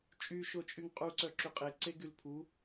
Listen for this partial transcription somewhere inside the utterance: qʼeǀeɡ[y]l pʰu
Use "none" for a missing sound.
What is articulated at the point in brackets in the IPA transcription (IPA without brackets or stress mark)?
y